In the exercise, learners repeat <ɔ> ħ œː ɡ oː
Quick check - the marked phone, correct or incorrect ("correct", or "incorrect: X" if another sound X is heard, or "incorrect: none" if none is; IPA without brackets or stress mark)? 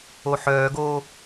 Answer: incorrect: o